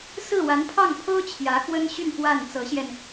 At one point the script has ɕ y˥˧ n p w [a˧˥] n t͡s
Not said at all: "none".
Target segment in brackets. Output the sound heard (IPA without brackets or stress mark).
a˥˩